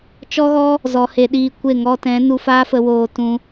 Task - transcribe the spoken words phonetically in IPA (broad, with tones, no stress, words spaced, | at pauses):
t͡ʃɔ˦ɣɔ˦ | zɔ˨˦he˨˦ɗiː˧kʷe˦˨ ŋɔ˧tɛ̃˨˦ nu˧faː˦ fə˧woː˧tũ˧